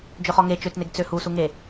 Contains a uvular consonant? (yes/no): yes